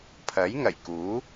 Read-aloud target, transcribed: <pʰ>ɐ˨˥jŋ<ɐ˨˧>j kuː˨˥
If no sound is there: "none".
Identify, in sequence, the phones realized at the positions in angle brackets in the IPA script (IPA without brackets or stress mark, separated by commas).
pʰ, ɐ˨˩